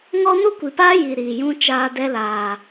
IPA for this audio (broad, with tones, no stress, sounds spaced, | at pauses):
ŋ ɔ˦ n u˦ kʷ i˨ p aː˦ j i˨ ɾ iː˨ j ũ˦ t͡ʃ aː˧ d ɛ˦ l aː˨